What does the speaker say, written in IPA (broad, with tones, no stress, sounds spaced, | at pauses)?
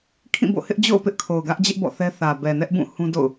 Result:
kʰ ĩ˦˨ b o̰˦˨ h ɪ˦ ʔ d͡ʑ o̰˦˨ ʊ̯ p ɪ˦ ʔ kʰ o˨ ʊ̯ ɡ ä˦ ʔ d͡ʑ ɪ˦ ʔ b ɔ̰˦˨ θ ɛ˦ θ ä˨ b ɛ˨ n ɛ˦ ʔ b ũ˦˨ h ũ˦ d o̰˦˨ ʊ̯